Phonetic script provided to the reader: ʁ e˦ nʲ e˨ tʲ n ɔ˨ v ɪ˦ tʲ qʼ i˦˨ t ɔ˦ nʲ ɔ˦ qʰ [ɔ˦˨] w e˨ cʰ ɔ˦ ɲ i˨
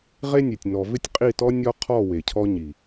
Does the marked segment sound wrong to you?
no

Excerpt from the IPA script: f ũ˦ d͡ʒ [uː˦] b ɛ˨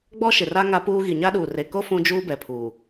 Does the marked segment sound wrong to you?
no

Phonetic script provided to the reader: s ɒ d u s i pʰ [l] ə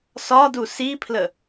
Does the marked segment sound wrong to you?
no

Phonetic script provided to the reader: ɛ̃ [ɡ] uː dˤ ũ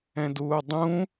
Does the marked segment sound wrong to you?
yes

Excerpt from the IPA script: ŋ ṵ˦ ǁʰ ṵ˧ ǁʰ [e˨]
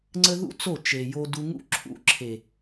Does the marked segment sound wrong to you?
no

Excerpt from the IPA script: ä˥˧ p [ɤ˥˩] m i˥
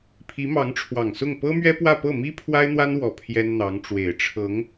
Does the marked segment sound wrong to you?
no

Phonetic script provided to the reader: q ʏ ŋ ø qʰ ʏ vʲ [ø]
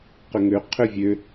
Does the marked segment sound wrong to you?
no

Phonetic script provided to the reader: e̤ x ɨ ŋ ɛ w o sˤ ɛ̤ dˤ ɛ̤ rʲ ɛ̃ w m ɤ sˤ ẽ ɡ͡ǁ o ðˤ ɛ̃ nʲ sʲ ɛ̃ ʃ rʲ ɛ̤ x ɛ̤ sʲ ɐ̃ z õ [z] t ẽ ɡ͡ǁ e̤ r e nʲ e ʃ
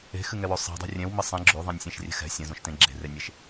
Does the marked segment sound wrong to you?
yes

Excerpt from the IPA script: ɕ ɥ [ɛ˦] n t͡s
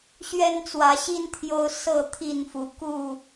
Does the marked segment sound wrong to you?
no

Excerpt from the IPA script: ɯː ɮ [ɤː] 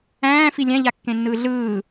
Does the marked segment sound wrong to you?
yes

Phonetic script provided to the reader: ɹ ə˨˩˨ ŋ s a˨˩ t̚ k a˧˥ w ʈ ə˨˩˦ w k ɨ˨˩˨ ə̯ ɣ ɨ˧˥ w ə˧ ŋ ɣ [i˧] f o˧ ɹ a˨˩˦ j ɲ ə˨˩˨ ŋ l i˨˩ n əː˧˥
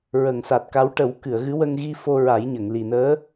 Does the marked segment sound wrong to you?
no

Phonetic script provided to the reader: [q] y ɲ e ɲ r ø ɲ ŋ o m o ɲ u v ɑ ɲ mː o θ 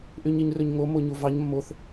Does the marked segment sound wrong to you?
yes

